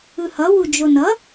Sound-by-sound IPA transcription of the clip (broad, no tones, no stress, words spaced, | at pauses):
ɯhʌ wud͡ʒonʌ